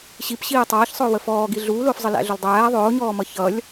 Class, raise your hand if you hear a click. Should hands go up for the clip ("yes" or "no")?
no